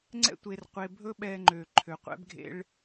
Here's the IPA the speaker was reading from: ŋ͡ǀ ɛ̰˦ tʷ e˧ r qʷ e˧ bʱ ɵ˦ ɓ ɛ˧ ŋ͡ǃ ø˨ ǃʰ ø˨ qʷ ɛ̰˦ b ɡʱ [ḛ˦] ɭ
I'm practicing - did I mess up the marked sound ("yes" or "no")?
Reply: no